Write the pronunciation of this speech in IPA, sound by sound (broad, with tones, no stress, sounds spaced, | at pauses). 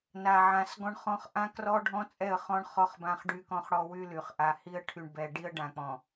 n a˨ ʕ ã˨ s ɡ ɔ̃˦ ɳ χ ɔ̃˦ χ ʔ ã˦ k r ɔ˦ ɖʱ ɔ̃˦ t͡sʼ ɛ˦˨ ə̯ χ ɔ̃˦ ɳ χ ɔ˦ χ b ã˦ χ ɖ y˦ k ɔ̃˦ χ ɽ ɔ˦ w y˦ l y˨ χ ʔ a˨ h i˦ ə̯ ʈʰ y˨ ɳ b ɛ˨ ɖ i˦ ə̯ ɖ ã˨ k͡p ɔ̃˨